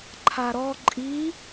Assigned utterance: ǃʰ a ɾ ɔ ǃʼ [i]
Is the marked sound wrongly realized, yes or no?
no